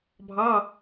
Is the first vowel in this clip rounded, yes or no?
no